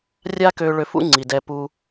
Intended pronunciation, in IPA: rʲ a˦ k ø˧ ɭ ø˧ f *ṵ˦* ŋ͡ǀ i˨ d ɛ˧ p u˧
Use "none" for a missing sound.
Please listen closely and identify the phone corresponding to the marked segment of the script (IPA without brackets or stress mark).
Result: ṵ˦